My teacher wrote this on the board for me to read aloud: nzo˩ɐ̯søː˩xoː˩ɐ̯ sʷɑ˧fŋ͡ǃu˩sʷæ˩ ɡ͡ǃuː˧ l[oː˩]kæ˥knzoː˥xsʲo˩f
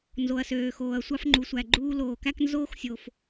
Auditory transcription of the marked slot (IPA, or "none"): oː˩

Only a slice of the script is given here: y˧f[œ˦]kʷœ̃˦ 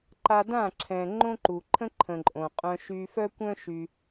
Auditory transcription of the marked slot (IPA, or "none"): œ˦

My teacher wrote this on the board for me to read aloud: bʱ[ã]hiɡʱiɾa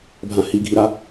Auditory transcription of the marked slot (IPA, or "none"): ã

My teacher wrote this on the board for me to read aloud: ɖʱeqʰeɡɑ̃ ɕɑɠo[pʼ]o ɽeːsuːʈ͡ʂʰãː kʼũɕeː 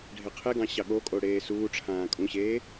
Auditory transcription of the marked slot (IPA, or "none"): kʼ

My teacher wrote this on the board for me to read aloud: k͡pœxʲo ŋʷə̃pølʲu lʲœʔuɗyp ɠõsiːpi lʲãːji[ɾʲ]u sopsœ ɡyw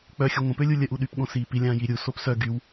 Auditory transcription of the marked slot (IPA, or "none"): ɾʲ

